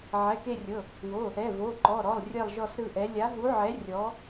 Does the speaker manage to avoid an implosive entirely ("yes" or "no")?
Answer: yes